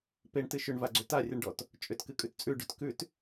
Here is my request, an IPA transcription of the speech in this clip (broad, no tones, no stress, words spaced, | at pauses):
peɳtɨ ʃʏɳvaɡ͡ǀʏ tarʲɨɳɖɔt | t͡ʃʼʏtkɨkʼʉt t͡sʼʉɖʉt kʉt